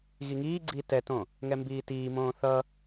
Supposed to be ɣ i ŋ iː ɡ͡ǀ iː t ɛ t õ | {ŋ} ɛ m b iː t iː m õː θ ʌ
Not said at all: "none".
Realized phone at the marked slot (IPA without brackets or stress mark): ŋ